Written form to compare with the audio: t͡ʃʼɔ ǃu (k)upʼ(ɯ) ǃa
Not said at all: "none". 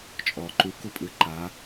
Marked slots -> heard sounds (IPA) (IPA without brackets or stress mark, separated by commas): k, ɯ